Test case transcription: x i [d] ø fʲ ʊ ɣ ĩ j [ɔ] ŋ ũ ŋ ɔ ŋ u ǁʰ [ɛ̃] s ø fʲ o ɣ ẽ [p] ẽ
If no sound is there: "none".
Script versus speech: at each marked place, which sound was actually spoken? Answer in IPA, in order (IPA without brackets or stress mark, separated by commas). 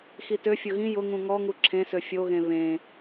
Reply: t, ʊ, ẽ, β